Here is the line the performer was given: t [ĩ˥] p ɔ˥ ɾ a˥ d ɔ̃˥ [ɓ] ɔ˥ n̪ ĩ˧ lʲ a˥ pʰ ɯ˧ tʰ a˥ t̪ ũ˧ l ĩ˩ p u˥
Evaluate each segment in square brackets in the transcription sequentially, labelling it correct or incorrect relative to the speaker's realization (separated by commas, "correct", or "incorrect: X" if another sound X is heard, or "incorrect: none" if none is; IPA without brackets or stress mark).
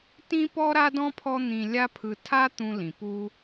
correct, incorrect: pʰ